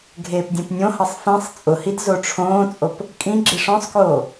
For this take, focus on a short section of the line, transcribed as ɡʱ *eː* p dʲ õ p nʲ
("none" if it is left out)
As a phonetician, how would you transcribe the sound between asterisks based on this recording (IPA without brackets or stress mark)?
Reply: eː